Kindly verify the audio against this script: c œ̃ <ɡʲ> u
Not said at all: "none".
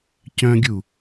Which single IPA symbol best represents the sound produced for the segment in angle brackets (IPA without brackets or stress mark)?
ɡʲ